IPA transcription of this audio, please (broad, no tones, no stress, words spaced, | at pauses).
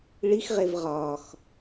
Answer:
ɭixʁev ʁɒːx